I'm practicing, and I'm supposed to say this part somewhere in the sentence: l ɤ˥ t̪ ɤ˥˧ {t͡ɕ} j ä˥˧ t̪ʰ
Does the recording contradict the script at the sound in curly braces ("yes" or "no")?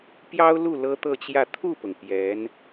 no